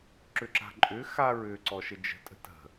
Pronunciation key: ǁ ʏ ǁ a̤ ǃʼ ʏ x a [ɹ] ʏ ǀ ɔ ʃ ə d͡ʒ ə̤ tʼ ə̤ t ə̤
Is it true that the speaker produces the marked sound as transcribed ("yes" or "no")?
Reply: yes